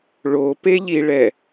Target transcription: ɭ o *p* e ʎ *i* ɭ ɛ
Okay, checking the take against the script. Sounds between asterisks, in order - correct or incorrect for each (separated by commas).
correct, correct